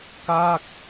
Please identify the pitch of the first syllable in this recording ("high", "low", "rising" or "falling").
falling